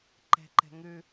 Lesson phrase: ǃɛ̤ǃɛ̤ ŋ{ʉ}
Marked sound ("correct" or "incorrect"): correct